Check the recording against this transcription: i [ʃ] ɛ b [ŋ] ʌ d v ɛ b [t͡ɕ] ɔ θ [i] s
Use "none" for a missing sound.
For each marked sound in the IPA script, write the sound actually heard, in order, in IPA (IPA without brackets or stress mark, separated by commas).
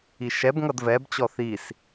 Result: ʃ, ŋ, t͡ɕ, i